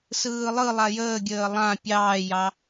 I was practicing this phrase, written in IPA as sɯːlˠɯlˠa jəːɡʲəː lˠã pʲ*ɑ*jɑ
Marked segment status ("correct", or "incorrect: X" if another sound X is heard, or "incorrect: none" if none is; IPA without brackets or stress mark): incorrect: ɑː